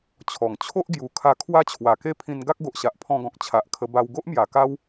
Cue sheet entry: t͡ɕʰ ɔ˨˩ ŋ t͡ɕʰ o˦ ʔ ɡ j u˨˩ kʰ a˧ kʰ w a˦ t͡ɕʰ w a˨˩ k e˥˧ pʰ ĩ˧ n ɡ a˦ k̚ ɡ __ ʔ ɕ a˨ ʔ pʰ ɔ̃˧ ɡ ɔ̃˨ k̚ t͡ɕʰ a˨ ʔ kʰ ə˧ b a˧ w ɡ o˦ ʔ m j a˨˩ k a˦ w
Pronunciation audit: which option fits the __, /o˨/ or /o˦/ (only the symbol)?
o˨